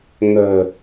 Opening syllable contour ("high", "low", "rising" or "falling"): low